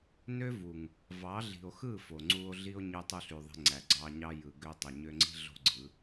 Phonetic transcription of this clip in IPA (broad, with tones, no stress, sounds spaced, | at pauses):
n ø˦ v u˨ ŋ | v ɑ˨˦ ɮ i̤˨ o̯ x ɯ˦˨ f o˨ ŋ͡ǀ u˧ o̯ ɮ i˦ o̯ ɲ y˧ tˤ u˧ ɬ y˨ ðˤ e̤˧ ŋ͡ǀ æ˨ ɡ͡ǀ ɑ˧ ɲ ɑ˦ j ɯ˨ ɡ ø˧ tˤ e˨ ɲ ø˧ ŋ͡ǀ i̤˦ ɮ o̤˦ ɡ͡ǀ ɯ˨˦